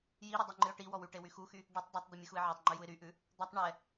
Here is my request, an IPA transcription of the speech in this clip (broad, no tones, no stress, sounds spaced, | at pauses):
j i ɾ y dˤ u ŋ͡ǃ ɨ ʊ̯ ʈ i w ɔ w y ʈ e w y x u x y | ɖ ɨ tˤ dˤ ɛ tˤ d̪ i mʲ ɨ x u ɪ̯ ʕ ɔ tˤ ŋ͡ǃ ʉ j u ɪ̯ ɾ y ʔ ʉ | d̪ ɔ tˤ ɳ ɛ